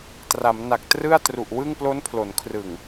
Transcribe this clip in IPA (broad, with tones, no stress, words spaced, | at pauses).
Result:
tra˩˦mna˨˩k̚ trɯ˥˩a̯tru˨˩ʔwɯ˥˩ŋ plo˦˥npʰlo˩˦nkʰrɯ˨˩ŋ